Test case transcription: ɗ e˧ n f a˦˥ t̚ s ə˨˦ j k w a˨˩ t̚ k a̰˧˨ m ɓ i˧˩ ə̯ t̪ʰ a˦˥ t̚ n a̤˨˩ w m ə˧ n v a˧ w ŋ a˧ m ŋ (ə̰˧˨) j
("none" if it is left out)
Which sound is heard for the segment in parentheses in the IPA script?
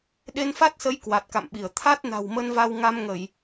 ə˧˩˨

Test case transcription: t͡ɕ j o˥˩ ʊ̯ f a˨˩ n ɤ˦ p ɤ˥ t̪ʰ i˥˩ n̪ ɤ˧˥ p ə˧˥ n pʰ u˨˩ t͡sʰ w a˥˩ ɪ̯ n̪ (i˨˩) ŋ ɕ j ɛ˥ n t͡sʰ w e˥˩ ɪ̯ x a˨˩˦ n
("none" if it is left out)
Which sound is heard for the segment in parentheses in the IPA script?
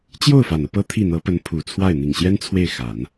i˨˩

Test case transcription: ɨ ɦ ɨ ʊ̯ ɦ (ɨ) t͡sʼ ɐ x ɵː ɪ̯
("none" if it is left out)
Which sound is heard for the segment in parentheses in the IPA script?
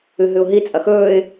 i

